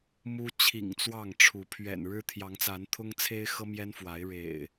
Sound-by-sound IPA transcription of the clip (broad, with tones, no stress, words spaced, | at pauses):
mu˦ t͡ɕʰḭ˨˩ŋ t͡swɑ˥˨ŋ ʈ͡ʂʰu˨˦ pʰɥɛ̰˨˩nɻɻ̩˦t̪ʰjɑ˨˦ŋt͡sa˨˦n t̪ʰʊ˦ŋt͡sʰe˦ɪ̯xɤ˦ mjɛ˦nfwa˨˦ɪ̯ ɻḛ˨˩ɪ̯